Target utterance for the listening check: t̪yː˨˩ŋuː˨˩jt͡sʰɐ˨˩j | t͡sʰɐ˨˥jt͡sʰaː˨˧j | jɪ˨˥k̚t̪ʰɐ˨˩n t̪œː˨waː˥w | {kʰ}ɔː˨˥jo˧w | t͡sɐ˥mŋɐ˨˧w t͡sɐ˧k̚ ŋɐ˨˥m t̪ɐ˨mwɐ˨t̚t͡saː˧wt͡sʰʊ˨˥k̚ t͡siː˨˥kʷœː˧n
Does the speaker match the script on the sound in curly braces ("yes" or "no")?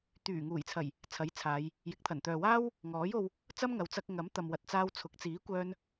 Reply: no